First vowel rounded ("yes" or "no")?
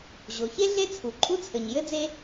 yes